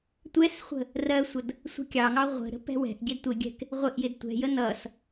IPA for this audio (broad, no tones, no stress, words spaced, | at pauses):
tʷɛsχʷə̤ | rɜsʷʌd | sʷɛ̤kʲɑŋɑ ʁʷə̤ ɾə̤pɛ̤wɛ̤ʔɟɪd tʷɪɡʲɛ̤k | ʁʷɪʔjɪd tʷɛ̤jə nʌs